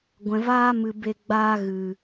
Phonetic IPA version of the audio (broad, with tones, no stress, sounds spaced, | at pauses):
ɡʷ ɛ̃˨ v aː˦ m ɨ˨ b e˧ ɡ͡b aː˧ ɣ ɨ˨